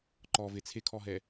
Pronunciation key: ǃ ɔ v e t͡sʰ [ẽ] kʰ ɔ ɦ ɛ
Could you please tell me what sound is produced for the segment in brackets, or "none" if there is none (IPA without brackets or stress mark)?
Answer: e